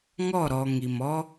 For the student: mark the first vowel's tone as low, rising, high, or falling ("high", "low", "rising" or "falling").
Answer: falling